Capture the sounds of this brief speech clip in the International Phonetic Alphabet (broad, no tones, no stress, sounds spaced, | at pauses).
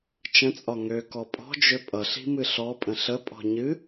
t͡ʃ ə̃ t͡sʼ ɒ ŋ ø k ɔ pʼ ɔ̤ d͡ʒ ø pʼ ʌ ɬ i̤ m ɨ ɬ ɔ pʼ ə̃ ɬ ə pʼ ɔ̤ ɲ ɨ